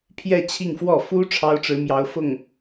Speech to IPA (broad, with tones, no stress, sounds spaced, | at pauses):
pʰ j ɛ˥˧ t͡ɕʰ i˥˧ ŋ f w ɔ˥˩ f u˥ ʈ͡ʂʰ ɑ˥ ʊ̯ ʈ͡ʂ ɻ̩˧˥ m j ɑ˧˥ ʊ̯ f ʊ˥˩ ŋ